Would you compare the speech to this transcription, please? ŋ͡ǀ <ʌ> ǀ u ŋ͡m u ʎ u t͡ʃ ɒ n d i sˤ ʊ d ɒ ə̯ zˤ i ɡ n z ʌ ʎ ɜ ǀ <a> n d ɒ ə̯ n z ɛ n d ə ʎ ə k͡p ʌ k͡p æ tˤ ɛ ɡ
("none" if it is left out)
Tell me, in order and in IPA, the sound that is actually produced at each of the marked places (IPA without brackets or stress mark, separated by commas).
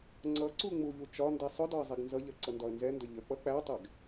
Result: ʌ, ʌ